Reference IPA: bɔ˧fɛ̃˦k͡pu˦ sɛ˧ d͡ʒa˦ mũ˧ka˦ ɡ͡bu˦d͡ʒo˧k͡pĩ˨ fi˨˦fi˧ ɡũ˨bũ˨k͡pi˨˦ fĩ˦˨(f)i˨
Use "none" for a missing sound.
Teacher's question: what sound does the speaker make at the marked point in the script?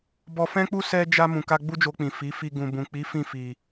f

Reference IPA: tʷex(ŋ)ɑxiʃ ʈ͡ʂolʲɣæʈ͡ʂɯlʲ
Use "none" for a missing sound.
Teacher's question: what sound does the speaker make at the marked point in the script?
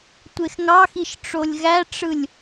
ŋ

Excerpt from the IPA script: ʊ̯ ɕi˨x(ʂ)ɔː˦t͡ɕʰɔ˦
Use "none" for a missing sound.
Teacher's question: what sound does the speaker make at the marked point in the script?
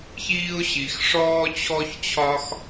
ʂ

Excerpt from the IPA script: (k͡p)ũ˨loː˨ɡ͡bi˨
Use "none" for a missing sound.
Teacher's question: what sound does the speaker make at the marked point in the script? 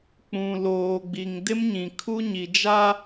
k͡p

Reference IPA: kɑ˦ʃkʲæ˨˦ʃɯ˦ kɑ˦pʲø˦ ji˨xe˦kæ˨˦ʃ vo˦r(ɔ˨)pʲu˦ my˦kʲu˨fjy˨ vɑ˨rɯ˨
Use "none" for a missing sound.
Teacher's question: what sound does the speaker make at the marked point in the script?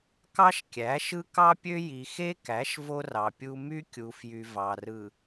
ɑ˨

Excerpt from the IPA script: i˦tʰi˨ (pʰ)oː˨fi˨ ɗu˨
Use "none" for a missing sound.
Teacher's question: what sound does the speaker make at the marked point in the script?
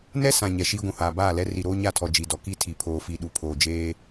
pʰ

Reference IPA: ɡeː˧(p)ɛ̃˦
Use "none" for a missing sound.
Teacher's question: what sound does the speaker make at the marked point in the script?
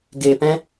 p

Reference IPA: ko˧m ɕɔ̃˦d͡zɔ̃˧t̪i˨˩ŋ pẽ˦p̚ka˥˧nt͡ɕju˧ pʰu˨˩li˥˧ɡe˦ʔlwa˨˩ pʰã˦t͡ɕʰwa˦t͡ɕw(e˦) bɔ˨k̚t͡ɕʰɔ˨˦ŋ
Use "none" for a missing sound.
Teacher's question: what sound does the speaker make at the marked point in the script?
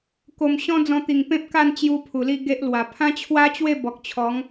e˥˧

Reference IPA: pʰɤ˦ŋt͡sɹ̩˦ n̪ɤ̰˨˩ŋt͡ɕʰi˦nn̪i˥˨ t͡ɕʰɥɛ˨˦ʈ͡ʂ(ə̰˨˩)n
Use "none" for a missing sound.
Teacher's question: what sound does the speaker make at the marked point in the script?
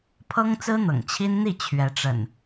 ə̰˨˩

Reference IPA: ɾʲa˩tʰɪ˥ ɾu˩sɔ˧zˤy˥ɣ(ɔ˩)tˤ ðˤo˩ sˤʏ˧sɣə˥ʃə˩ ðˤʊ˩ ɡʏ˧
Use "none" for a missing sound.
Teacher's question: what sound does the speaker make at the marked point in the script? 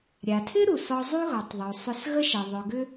ɔ˩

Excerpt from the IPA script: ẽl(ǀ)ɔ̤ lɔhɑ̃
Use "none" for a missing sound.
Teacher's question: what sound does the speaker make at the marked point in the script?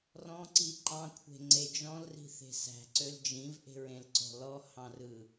ǀ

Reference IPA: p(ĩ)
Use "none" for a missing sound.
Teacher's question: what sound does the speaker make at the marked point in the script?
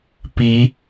i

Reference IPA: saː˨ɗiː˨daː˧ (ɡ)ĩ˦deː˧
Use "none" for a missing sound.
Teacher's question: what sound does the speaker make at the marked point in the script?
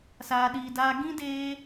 ɡ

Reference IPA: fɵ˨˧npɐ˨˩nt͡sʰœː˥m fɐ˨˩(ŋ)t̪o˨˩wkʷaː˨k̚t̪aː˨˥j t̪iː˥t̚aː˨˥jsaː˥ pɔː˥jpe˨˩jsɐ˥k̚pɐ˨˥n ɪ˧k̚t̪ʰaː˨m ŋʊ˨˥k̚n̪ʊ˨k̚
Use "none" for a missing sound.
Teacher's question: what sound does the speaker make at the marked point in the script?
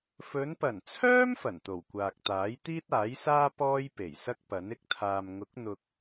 n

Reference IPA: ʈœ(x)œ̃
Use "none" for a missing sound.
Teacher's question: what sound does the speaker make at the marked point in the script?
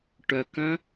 k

